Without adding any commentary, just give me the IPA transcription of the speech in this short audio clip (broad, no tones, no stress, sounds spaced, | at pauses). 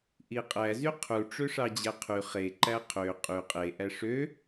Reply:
ʔ i qʼ æ z y qʰ u ʈ͡ʂ ø ʂ ɑ d͡ʑ æ qʰ y χ e ǃ æ qʰ ø qʼ y qʼ e ʔ æ ʂ ø